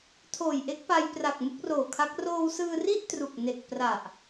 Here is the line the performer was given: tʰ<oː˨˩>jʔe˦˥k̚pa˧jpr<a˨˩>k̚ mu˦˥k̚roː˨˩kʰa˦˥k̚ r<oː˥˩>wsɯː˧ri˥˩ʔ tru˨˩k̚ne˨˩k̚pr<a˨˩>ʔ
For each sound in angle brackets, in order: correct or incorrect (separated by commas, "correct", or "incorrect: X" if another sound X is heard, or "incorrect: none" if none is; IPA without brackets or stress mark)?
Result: correct, correct, incorrect: oː˧, correct